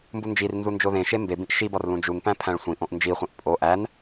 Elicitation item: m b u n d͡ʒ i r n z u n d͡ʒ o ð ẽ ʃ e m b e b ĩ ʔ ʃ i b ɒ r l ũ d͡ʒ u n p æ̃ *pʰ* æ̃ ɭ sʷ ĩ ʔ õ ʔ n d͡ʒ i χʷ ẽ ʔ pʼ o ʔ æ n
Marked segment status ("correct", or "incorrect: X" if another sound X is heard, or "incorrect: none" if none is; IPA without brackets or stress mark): correct